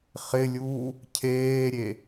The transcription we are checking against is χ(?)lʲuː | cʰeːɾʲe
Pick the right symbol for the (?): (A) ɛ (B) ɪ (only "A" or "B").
B